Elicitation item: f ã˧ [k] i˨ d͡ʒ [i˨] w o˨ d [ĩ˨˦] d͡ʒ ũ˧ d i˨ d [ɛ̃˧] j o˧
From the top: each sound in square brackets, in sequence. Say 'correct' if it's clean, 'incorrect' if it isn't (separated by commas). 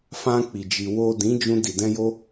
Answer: incorrect, correct, correct, correct